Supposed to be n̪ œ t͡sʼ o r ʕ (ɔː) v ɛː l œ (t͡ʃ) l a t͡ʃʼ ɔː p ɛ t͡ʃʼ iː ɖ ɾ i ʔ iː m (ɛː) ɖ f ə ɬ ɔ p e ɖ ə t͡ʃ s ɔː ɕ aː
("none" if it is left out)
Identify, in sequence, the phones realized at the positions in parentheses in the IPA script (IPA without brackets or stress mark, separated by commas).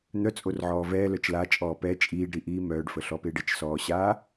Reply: ɔː, t͡ʃ, œː